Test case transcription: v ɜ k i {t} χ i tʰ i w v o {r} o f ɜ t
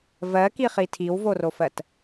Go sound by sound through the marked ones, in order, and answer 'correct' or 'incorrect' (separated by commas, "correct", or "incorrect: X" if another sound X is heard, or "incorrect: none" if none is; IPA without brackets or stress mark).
incorrect: none, correct